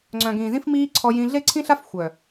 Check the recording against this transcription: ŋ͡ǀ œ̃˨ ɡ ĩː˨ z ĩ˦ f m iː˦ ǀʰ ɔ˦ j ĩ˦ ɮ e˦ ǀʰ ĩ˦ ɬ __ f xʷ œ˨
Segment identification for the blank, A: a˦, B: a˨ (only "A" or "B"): A